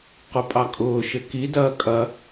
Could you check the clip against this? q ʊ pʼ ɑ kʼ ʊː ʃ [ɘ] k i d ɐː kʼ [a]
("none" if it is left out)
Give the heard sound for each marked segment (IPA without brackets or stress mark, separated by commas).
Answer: ɘ, ɐ